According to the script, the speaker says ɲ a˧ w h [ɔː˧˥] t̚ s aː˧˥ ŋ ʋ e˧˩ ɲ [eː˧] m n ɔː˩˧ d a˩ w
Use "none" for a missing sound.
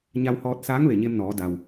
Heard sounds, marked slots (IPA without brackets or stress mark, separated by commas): ɔː˧, e˧